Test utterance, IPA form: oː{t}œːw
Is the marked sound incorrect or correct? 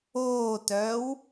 correct